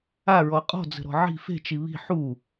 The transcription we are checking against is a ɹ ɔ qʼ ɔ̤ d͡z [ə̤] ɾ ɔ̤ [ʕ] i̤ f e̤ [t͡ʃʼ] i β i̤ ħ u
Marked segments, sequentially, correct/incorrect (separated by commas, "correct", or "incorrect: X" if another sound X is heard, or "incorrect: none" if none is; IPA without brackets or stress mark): correct, correct, incorrect: t͡ʃ